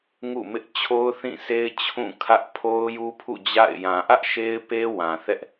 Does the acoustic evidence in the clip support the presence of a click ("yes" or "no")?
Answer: no